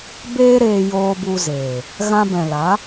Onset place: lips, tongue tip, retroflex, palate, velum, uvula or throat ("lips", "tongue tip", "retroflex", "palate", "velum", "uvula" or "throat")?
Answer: lips